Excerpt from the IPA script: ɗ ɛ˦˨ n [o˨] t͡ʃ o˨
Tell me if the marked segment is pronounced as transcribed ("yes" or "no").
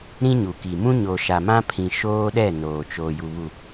no